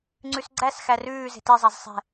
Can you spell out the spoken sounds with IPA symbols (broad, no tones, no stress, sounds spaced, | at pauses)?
ŋ͡ǀ ʉ s ɡ͡ǀ æ s x æ r ʉː z e̤ t e zˤ a z sˤ ɛ̤